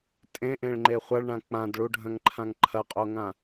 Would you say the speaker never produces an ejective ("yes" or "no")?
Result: no